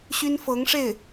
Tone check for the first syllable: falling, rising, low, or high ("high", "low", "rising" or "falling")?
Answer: high